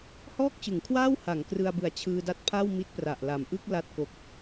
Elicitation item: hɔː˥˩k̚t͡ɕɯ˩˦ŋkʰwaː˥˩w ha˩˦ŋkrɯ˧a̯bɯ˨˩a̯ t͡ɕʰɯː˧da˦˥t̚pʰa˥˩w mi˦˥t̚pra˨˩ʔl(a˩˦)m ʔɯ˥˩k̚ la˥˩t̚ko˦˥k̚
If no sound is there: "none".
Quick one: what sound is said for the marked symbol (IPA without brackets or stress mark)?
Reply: a˨˩